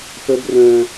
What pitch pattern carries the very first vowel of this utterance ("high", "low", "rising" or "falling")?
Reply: high